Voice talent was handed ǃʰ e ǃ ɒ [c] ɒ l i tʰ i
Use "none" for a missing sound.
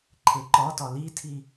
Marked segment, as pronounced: t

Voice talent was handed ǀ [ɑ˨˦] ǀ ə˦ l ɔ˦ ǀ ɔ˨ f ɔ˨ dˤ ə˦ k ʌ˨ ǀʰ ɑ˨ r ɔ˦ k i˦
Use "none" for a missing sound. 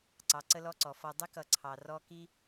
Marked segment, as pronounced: ɑ˨˦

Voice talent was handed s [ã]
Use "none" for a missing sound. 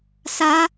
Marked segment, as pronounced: a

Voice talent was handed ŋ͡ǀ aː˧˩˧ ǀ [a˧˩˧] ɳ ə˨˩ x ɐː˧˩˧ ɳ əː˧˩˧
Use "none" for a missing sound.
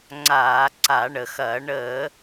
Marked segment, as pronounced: a˧˩˧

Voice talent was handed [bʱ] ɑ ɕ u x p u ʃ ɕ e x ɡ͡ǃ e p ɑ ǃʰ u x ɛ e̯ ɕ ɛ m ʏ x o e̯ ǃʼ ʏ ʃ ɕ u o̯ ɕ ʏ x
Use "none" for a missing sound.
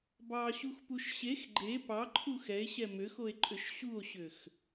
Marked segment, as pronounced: b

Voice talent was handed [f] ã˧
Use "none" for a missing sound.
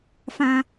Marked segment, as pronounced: f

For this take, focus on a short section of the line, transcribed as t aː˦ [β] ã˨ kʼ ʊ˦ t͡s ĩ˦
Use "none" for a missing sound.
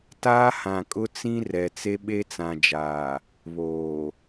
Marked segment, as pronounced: h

